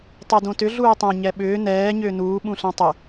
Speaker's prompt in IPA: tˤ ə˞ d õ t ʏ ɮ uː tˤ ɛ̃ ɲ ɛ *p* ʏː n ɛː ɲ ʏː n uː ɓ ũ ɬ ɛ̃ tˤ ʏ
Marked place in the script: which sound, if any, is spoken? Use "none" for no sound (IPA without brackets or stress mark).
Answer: ɓ